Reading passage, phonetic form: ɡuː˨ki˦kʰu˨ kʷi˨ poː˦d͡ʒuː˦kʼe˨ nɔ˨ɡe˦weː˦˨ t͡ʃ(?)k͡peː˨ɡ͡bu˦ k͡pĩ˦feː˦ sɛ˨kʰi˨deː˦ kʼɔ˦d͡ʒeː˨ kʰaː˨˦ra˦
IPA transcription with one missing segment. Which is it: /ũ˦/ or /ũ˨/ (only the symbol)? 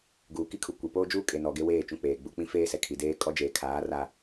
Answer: ũ˦